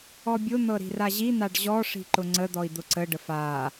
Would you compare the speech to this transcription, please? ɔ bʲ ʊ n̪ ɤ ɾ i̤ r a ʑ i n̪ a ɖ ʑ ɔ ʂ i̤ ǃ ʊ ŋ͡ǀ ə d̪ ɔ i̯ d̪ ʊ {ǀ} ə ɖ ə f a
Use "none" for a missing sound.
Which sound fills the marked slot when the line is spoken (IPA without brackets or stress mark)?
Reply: ǀ